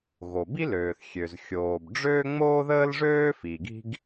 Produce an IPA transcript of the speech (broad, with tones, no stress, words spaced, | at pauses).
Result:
ɣo˩ bi˥løː˩θ xʲø˩zxʲoː˩b ɖ͡ʐøː˥ŋ͡moː˥ðəː˥lʐøː˥ fiː˩ɡi̤˥ɡ